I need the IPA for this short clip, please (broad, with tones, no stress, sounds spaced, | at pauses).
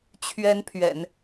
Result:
t͡ɕʰ ɥ ɛ˧˥ n pʰ ɥ ɛ̰˨˩˦ n